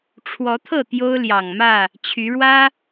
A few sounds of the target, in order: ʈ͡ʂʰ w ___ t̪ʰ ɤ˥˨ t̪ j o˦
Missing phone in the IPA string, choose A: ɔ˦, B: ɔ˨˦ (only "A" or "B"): B